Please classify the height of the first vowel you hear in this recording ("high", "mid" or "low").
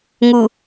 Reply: high